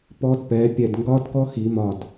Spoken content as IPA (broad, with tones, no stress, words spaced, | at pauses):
pɔ˦˥dpɛ˨˥ pʲɛ˧˩dŋɡɒ˦˥dkɔ˦˥ xi˨˩˦mɒ˧˩d